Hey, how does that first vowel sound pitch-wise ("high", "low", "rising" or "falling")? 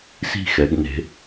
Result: falling